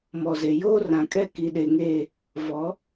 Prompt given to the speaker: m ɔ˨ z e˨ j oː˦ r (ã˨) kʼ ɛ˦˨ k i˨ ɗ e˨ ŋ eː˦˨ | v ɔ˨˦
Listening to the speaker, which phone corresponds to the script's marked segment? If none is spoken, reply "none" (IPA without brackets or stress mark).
ã˨